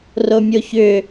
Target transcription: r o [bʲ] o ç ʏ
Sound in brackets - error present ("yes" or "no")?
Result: yes